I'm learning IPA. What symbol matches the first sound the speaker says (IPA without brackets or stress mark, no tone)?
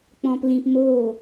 k͡p